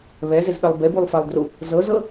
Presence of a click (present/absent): absent